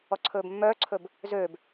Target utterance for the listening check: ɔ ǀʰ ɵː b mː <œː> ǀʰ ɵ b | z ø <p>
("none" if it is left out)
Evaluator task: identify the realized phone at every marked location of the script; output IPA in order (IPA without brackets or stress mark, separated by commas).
œː, b